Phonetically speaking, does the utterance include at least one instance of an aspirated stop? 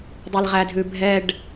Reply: no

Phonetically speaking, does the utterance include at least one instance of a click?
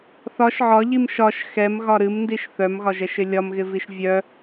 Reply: no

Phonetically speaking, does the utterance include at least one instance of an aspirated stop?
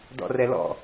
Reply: no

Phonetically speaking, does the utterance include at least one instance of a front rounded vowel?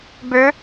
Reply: yes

